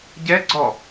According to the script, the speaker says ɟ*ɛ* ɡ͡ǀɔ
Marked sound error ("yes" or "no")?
no